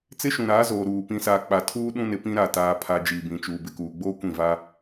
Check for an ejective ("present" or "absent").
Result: absent